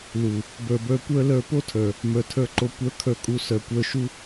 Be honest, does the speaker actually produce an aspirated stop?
yes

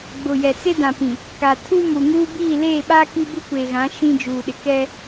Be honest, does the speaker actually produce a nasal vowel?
yes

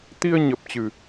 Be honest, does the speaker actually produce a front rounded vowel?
no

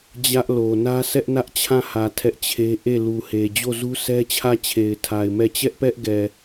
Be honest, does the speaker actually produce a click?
no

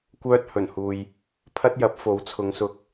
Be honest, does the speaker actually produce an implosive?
no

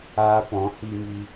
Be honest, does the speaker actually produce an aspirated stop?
no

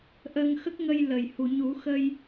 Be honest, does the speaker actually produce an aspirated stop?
no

